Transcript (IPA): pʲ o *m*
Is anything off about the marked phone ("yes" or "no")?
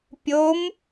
no